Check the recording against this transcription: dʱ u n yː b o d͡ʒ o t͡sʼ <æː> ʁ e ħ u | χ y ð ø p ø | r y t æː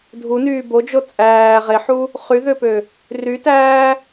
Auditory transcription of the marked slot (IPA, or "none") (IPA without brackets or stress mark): æː